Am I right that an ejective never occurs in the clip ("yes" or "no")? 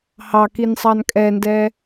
no